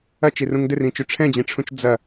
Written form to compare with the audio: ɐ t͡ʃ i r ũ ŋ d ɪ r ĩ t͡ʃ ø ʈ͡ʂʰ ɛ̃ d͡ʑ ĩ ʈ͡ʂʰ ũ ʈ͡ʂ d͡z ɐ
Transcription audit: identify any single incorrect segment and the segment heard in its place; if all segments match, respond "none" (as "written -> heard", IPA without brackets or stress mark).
ʈ͡ʂ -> t͡ʃ